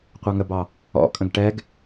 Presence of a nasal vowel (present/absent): present